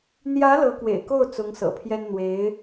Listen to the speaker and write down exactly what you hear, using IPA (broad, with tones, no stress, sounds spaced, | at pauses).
n̪ j ä˧˥ l ɤ˧˥ k w ḛ˨˩ ɪ̯ k o˥˩ ʊ̯ t͡s ʊ˧˥ ŋ s ɤ̰˨˩ pʰ j ɛ˥ n n̪ w e˧˥ ɪ̯